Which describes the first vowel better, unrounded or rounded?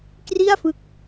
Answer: unrounded